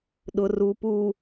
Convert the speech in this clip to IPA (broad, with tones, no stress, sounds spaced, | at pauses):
ɗ ʊ˨ r u˨ p u˨